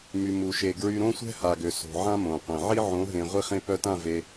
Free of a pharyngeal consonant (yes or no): no